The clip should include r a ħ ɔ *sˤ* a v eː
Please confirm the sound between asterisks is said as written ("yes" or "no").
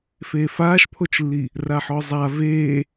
no